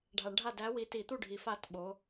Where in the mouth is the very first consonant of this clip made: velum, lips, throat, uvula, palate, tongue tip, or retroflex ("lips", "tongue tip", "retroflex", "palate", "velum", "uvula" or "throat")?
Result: retroflex